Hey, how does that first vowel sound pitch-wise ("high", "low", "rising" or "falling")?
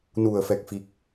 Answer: low